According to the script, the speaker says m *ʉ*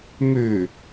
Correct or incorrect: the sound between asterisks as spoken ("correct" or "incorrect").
correct